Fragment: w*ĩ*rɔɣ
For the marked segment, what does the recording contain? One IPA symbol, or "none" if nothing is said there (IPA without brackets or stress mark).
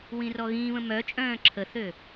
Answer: ĩ